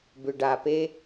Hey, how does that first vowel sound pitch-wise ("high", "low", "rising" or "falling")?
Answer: low